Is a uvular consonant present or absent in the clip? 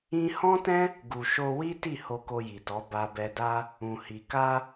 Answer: absent